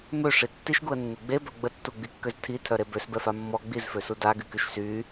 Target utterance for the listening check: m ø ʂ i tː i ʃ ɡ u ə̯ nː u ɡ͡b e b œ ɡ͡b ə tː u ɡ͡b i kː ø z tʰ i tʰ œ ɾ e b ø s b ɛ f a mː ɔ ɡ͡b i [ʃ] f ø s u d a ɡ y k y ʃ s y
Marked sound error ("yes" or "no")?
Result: yes